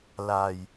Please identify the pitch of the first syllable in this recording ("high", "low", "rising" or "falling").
low